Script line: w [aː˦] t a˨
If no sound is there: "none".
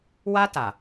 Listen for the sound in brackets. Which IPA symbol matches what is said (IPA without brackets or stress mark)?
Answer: a˦